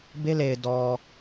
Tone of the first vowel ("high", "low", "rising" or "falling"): high